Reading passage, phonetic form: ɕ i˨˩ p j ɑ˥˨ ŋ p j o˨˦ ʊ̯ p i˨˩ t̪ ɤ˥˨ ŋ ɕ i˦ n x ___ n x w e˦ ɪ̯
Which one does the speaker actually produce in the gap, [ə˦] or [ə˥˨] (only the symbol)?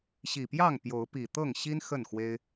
ə˥˨